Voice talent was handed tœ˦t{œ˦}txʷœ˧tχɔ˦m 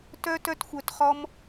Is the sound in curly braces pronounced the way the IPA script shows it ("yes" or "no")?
yes